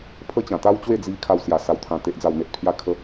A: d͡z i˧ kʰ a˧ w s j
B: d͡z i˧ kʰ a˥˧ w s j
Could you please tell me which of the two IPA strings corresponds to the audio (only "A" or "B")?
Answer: B